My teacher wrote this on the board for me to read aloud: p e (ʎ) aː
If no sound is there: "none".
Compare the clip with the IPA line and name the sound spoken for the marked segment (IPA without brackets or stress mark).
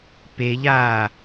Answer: ʎ